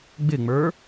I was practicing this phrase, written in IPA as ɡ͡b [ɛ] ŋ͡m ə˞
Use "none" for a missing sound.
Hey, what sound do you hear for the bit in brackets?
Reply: ɪ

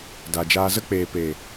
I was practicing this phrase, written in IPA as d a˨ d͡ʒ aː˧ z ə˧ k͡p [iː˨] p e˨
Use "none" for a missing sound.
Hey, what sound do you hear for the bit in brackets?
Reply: eː˨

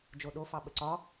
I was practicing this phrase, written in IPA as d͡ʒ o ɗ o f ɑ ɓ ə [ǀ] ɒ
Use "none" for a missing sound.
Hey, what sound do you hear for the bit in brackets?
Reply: ǀ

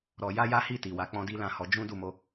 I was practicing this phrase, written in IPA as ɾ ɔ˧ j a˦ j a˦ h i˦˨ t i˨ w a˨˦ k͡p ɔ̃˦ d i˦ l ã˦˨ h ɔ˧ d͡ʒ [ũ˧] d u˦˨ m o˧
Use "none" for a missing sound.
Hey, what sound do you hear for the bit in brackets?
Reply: ũ˦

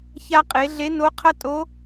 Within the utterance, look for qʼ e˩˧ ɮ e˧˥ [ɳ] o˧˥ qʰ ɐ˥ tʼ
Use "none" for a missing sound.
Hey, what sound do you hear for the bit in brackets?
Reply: n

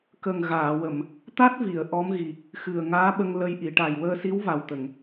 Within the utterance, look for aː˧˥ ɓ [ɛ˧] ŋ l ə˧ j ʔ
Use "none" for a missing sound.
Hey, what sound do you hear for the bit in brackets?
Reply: ə˧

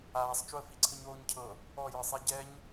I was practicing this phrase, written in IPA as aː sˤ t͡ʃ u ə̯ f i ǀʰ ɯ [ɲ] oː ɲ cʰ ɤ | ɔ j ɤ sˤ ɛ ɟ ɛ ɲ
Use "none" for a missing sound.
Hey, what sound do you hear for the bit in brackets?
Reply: ɲ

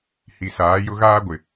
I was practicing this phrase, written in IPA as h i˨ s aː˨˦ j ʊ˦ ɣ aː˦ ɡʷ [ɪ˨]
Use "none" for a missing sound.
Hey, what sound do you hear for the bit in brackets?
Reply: ɪ˨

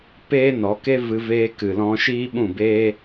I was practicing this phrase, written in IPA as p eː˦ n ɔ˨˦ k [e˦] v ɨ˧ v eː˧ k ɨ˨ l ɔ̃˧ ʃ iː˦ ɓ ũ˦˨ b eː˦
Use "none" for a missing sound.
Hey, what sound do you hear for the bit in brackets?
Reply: e˦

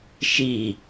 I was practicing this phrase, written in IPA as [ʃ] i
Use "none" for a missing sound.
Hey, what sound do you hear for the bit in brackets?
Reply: ʃ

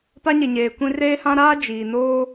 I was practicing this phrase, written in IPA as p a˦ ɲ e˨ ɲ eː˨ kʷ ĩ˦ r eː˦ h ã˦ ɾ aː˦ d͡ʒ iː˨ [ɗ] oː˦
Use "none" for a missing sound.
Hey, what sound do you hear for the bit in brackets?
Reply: n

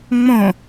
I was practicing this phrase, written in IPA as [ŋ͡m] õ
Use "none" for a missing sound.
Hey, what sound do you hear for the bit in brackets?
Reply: ŋ͡m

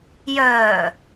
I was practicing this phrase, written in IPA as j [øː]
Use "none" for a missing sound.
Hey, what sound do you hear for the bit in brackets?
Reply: œː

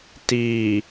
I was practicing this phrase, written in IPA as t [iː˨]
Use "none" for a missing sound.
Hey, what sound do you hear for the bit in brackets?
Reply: iː˨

